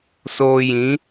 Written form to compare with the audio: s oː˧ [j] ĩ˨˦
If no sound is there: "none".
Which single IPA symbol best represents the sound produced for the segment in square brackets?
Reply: j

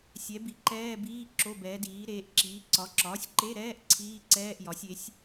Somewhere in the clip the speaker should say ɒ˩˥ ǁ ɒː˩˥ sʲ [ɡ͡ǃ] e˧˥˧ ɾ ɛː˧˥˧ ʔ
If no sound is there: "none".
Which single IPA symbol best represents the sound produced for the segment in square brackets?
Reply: ǃ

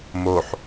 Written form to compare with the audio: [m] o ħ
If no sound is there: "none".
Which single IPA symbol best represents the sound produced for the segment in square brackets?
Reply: m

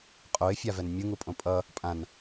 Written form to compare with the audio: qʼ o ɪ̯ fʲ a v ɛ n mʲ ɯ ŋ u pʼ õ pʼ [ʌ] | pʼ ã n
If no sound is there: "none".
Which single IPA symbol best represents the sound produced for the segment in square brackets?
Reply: ʌ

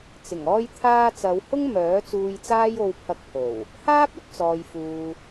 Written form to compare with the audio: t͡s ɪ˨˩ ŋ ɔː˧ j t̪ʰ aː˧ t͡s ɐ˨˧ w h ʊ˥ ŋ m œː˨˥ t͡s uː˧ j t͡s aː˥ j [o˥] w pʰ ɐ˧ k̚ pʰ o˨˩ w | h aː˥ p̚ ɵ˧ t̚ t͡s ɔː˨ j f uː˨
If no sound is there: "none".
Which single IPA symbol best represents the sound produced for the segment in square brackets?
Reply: o˧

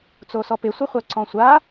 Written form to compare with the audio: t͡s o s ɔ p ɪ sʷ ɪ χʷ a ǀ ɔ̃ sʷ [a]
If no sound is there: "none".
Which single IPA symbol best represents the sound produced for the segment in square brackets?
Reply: a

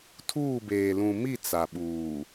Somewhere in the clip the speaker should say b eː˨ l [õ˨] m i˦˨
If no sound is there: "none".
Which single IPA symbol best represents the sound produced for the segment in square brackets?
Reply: ũ˨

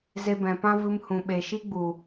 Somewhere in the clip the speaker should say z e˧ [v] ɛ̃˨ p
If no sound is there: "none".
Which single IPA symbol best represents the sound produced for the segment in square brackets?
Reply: b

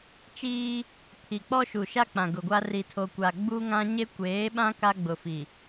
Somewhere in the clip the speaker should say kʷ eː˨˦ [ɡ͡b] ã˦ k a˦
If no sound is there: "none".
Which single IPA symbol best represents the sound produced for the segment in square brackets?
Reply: ɓ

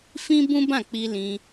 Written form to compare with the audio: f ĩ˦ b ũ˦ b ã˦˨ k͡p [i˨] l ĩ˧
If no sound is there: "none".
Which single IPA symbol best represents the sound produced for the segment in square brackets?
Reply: i˧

